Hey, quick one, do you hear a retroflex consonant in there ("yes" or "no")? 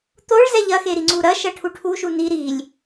yes